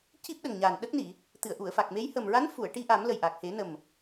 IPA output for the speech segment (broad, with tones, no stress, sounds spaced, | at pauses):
c i˦˥ p̚ ɗ ə˨˩ ŋ ɲ a˨˩ n ɗ ə˦˥ k̚ n i˨˩˨ | t̪ ɨ˨˩˨ ə̯ ʔ u˨˩˨ ə̯ f a˨˩ k̚ m e˧˥ j h ə˨˩ m ɹ a˧˥ n f u˨˩˨ ə̯ ʈ i˧ ʔ a˨˩˦ m l ə˨˩ j ʔ a˨˩ k̚ h e˨˩˦ n ə˨˩ m